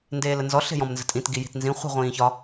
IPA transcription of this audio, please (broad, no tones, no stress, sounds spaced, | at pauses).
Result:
n d eː l ə n z ɔ ɬ e̤ j ɔ̃ m n z ə̤ tʼ ĩ t ɡ i j i̤ t n z ĩ χʷ i̤ ʁʷ ĩː ç ɒ